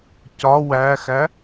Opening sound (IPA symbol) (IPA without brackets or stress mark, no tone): c